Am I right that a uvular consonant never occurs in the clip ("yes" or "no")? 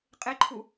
no